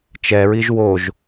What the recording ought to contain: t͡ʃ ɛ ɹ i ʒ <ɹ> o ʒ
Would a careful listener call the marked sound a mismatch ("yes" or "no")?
yes